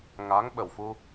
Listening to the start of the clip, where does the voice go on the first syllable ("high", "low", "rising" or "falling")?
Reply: rising